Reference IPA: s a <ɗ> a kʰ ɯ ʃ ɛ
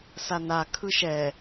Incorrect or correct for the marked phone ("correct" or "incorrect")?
incorrect